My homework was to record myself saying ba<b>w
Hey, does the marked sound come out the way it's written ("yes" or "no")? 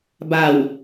no